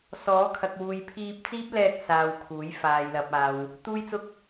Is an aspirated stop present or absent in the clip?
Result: present